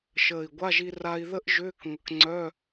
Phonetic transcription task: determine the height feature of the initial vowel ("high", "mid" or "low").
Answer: mid